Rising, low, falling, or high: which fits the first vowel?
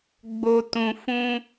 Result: low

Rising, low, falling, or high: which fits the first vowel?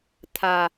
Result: low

